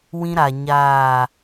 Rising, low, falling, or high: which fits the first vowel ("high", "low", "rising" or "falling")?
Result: high